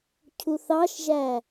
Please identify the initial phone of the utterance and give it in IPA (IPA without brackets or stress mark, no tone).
cʰ